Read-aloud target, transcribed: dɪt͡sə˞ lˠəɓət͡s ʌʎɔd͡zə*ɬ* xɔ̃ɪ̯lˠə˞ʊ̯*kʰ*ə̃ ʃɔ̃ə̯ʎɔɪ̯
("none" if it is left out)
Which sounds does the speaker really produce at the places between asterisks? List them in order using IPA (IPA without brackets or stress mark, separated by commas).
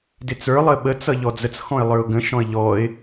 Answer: t͡s, ɡ